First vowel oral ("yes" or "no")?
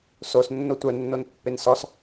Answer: yes